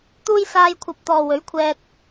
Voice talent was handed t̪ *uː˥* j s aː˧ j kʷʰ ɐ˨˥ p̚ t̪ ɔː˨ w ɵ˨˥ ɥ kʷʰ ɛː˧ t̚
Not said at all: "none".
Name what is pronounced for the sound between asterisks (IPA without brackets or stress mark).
uː˥